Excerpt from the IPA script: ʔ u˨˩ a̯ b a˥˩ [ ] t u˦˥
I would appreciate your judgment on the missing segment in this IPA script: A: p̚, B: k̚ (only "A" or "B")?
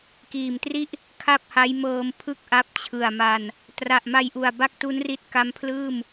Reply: B